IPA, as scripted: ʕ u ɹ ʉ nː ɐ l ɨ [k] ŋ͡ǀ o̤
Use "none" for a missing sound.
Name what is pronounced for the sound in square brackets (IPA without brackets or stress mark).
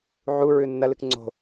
k